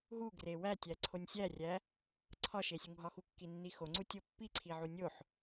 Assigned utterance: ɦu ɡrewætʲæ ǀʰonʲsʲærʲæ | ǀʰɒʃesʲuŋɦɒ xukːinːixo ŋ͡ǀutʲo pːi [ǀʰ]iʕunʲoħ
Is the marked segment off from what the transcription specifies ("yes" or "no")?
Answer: no